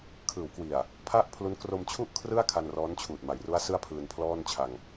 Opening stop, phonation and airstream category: aspirated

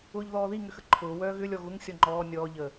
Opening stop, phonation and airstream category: click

